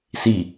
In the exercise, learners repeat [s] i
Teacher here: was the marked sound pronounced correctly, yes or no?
yes